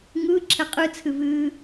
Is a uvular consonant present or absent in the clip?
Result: present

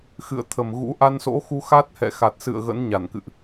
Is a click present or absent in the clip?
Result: absent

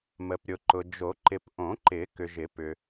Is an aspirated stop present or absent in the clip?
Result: absent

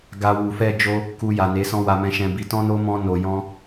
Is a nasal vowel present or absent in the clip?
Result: present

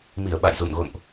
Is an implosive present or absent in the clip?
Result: present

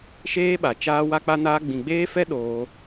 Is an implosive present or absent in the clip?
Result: present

